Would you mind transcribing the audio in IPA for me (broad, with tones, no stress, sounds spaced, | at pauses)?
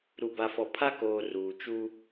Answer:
ɾ u˨ b a˨ f ɔ˨ pʰ a˦ k oː˨ r uː˨ t͡ʃ u˦